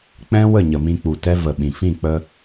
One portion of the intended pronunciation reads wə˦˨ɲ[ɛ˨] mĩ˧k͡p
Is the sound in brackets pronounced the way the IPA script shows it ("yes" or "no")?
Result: no